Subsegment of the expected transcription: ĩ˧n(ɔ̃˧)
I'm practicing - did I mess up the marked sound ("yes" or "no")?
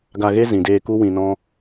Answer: yes